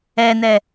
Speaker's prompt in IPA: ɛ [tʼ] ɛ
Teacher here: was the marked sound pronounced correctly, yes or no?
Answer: no